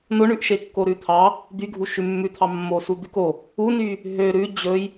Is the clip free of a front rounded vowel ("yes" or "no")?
no